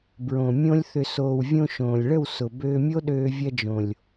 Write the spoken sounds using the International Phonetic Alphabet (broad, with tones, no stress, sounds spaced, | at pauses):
b ɹ õ˨ mʲ õ˧ lʲ θ ʏ˨ s oː˨ w vʲ õ˧ ʃ õː˨ lʲ ɭ ə˦˨ w s ʊ˨ b øː˧ mʲ o˦ ɗ øː˧ vʲ ɐ˧ d͡ʒ õ˨ lʲ